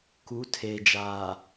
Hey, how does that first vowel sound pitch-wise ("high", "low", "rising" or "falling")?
rising